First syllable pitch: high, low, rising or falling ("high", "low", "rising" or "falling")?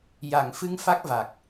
low